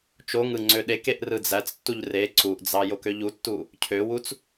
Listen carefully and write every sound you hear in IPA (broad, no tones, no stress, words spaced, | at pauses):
t͡ʃoŋɯ ŋ͡ǀøɗekeʔ rɯd͡zæt͡stːuʎ re ǀuʔd͡zɑ jokøʎutːu | cʰøwut͡s